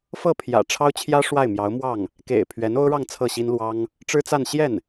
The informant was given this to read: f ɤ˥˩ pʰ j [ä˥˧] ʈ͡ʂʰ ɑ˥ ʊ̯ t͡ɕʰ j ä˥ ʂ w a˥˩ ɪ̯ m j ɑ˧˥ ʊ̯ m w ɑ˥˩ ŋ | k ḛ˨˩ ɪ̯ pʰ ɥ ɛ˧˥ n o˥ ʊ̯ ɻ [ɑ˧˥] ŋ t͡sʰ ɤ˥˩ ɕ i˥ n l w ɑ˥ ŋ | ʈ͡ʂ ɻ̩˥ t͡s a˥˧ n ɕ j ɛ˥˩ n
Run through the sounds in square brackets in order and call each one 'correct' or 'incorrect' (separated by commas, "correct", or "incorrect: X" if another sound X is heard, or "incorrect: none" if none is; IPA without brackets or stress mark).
incorrect: ä̰˨˩, incorrect: ɑ˥˧